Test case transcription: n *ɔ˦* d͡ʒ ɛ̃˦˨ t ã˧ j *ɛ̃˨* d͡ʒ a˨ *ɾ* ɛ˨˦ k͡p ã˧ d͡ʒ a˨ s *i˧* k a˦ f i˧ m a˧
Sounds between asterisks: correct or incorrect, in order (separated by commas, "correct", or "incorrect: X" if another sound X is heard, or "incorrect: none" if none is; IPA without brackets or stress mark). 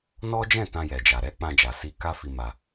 correct, incorrect: ɛ˨, correct, correct